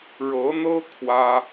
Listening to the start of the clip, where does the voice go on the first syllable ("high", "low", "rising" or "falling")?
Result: rising